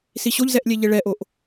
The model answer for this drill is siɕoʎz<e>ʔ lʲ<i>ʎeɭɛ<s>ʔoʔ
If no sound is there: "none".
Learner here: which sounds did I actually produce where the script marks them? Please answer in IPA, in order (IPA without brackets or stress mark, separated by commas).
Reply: ɛ, e, none